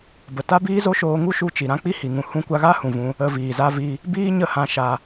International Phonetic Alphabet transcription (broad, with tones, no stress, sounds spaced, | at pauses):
b ə˨ t a˦ b iː˦ z o˦ ʃ oː˧ ŋ u˦ ʃ u˧ t͡ʃ i˨ ɾ ã˦ k͡p i˦ h i˨ ŋ ũ˧ h ũ˧ kʷ a˧ ɣ a˦ h ũ˨ v ũ˧ | ə˧ v iː˨ z a˦ v i˦ | b iː˦ ɲ ə˦˨ h ã˧ ʃ a˧